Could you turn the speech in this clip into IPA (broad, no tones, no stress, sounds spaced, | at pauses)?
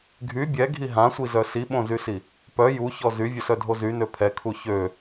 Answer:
ɡʱ y bʲ ɛ ɡʱ i ɦ ã sʷ i z œ s i ɓ õ z y s i | p œ j u ç ɔ z y vʲ o s œ dʱ o z y n ø pʰ ɛ kʰ u ç ø